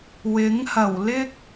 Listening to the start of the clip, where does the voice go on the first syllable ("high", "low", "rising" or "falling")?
rising